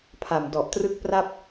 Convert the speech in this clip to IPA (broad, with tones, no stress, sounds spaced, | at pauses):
pʰ a˨˩ m d ɔ˨˩ ʔ t r ɯ˥˩ k̚ p r a˥˩ p̚